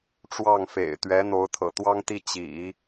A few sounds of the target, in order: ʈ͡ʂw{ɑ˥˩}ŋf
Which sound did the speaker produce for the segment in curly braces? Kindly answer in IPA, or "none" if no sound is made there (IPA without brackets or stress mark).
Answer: ɑ˥˩